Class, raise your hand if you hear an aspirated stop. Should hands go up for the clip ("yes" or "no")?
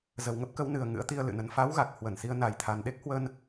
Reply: yes